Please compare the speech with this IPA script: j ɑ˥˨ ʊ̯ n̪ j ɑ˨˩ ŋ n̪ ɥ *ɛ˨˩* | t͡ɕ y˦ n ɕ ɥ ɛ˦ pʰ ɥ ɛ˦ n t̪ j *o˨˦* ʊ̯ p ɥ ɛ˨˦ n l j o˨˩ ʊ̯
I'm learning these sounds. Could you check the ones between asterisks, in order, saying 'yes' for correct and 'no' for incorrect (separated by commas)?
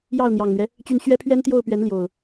no, no